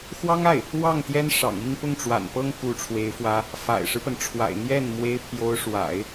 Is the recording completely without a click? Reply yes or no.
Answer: yes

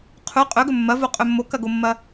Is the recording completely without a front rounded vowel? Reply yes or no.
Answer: yes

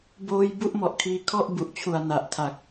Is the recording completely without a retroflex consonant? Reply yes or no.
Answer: yes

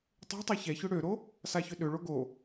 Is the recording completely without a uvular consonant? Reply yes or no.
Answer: yes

